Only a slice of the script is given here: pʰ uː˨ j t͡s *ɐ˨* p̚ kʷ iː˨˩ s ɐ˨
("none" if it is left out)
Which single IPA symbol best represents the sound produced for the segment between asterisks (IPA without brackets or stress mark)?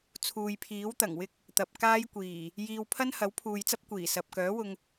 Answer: ɐ˥